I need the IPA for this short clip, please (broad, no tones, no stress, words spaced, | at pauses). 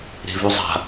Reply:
ɾe̤vʉzˤa̤